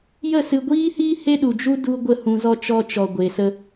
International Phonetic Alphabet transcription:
j ə˦˨ s ɨ˧ ɡʷ iː˦ h iː˦ h e˦ ɗ u˨ d͡ʒ u˦ d u˧ ɡʷ ə˦˨ h ũ˧ z ɔ˦ t͡ʃ ɔ˧ t͡ʃ ɔ˨ ɡʷ e˨ s ə˧

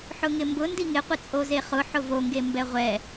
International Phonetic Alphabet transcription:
ħ ʊ ŋ ɪ m b ʊ n d i ŋ ɪ qʷ ɪ t͡sʼ o z e χ ʊ ħ ʊ v o ŋ ɡ e m b ɛ ʁʷ ɛ

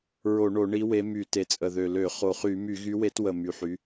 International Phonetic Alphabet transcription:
ɹ o˧˩˧ ɳ o˧˩˧ ɳ i˨˥ w e˨˥ m y˧˩˧ t e˨˩ t͡sʼ ə˨˩ ð ø˨˩ l ø˧˩˧ χ o˨˩ χ y˧˩˧ m y˧˩˧ ɣ y˨˥ w e˨˥ t w ə˨˩ m y˨˩ ħ y˨˥

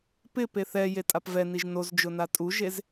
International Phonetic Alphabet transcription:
p ɪ p e θ ɛ j e tʼ a p v ɛ n i ʒ n o z d͡ʒ ʊ n a tʼ u ʒ e z

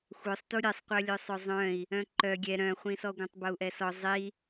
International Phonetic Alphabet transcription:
xʷ œ sˤ t u ɾʲ ɛ sˤ qʷ œ lʲ œ sˤ œ zˤ œ̃ i̯ | œ̃ ǃ œ ɡʲ ɛ ɾ œ̃ χʷ ĩ s ɔ ɡʷ œ̃ tˤ b o u̯ ʔ ɛ s ɔ zˤ i

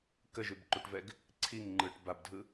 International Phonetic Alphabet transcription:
k ə ʒ ʉ b ǃ u ʈ v ɛ ɡ | ǀʰ i ŋ ŋ͡ǃ ɯ ʈ b a b dʱ ɯ

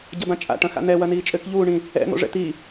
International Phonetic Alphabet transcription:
ɟ ɐ b ã t͡ʃʼ a̰ ʈ ɐ̃ x a̰ n̪ ɛ w ɐ n iː t͡ʃʼ ɘ k ʎ uː ɳ ĩ | ɛ̰ n̪ o̰ ʐ ɛ̰ t̪ iː

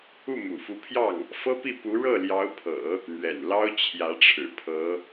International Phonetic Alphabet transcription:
u˥˩ m ṵ˨˩ f u˧˥ pʰ j ɑ˥˩ ŋ | f ɤ˥ p i˥˩ p u˧˥ ɻ ɤ˥˩ l j ɑ˧˥ ʊ̯ pʰ ɤ̰˨˩˦ | n̪ ɥ ɛ̰˨˩ n l ɑ˥ ʊ̯ t͡ɕʰ j ä˧˥ ʈ͡ʂʰ ɻ̩˨˩ pʰ ɤ˧˥

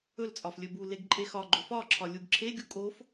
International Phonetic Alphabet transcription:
ɵ l t͡sʼ ɒ f lʲ ɵ b u l e ɡ ǃʼ e x ɒ ɡ͡ǃ ɵ f ɒ ǁʰ ɒ lʲ u ɡ ǁʰ e ɡʲ u kʼ o f

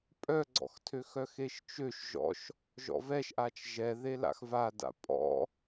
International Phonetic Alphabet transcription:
pʼ œ ɡ͡ǀ ɔ̰ x tʰ ø x œ x e ʃ t͡ʃ ø ʃ ʒ ɔ̰ ʃ | ʒ ɔ̰ v ɛ ʃ ʔ a t͡ʃ ʒ ɛ ð e l a̰ x v a d a̰ pʼ ɔ̰

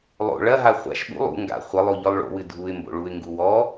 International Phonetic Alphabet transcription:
lˠ o̰ ɭ ɐ ɦ a χʷ a̰ ʃ ɓ ṵ lˠ ṵ ŋ ɡ a̰ χʷ ɘ lˠ o ʎ ɔ lˠ ɭ o̰ w ɨ dʱ u ɪ̯ m b o̰ ɭ u ɪ̯ ŋ ɡ u w ɔ

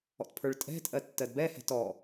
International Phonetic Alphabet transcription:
ɔ̰ t pʰ ə˞ ɭ tʼ ɛ̤ tʼ ɜ tː ɜ d b ɛ h ɛ̤ t ɔ

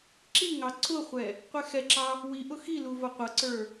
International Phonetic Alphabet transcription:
ǁ i ŋ ɑ ǀ ʊ χʷ ɛ | qʷ ɛ x ɛ ǁ ɑ | w i ʔ ʊ x i l u v ʌ qʷ ʌ ǀ ə˞

